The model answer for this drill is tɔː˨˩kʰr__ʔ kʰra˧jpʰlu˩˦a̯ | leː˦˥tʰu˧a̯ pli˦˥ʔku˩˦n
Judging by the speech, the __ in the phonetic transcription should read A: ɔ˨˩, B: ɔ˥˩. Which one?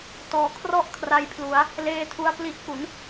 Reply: B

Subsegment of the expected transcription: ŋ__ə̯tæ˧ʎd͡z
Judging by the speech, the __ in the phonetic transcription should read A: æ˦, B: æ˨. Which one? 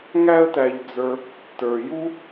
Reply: A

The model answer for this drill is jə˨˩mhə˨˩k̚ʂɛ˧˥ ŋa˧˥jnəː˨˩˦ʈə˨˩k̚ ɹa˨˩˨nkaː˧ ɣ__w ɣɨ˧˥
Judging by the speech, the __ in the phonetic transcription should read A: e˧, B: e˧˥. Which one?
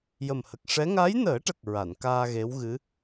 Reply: B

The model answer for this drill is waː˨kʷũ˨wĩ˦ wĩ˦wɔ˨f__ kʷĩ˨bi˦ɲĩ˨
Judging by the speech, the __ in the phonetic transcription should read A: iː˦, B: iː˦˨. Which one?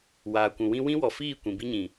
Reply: B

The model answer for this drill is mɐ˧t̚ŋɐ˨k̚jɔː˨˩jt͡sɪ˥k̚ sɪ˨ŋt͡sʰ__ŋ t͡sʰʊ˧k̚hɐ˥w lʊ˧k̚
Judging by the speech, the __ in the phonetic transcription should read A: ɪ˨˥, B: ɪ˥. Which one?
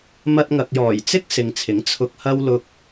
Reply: A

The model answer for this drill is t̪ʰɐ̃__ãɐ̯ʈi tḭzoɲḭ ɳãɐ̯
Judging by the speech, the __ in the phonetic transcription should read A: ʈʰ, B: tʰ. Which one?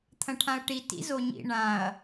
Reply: A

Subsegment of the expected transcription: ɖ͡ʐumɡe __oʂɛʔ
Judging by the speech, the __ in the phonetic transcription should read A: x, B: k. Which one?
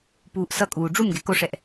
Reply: B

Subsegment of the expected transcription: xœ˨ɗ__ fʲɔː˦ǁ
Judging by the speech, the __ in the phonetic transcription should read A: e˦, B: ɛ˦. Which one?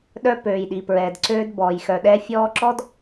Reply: B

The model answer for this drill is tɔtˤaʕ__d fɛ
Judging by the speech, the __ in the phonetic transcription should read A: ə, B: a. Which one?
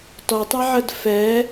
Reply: A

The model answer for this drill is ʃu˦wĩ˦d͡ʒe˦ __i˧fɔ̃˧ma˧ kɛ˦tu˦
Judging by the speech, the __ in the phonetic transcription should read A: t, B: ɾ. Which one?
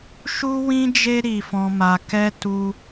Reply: B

